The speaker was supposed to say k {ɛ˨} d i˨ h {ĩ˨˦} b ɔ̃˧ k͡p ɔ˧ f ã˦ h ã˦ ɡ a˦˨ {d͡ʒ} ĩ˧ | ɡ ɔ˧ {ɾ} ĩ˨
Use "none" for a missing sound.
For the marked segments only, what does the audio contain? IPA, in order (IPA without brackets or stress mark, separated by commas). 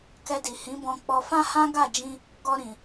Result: ɛ˧, ĩ˨˦, d͡ʒ, ɾ